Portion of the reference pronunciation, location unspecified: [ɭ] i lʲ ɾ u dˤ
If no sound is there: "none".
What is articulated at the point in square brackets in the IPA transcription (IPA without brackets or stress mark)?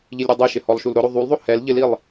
ʎ